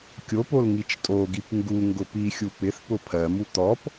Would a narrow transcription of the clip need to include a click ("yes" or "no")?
no